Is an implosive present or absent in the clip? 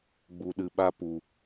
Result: present